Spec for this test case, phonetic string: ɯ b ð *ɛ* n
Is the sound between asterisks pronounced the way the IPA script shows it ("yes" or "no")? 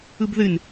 no